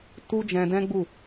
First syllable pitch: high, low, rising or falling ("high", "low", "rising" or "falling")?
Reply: high